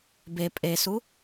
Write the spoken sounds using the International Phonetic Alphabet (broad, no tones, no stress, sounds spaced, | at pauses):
b e pʼ e s u